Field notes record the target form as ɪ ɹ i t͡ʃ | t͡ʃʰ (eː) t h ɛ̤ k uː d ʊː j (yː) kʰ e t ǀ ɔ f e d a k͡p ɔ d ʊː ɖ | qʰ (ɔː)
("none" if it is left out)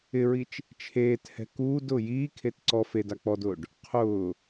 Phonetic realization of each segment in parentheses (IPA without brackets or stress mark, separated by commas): eː, iː, ʊː